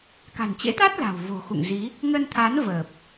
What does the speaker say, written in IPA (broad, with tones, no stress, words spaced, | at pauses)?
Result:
ka̤˨˩nt͡ɕḛ˧˥t̪aː˦˥t̚ la̤˨˩w vo̤˨˩xṵ˧˨ŋ zi˨˦ | ŋə˧nt̪ʰa˨˦n vəː˨˩p̚